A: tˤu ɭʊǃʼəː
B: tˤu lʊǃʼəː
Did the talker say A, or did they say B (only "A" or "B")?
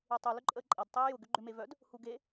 B